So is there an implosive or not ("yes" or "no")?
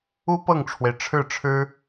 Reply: no